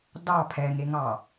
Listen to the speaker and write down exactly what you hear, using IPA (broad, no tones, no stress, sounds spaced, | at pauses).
d ɑ pʰ ɛ ŋ e ŋ ɑ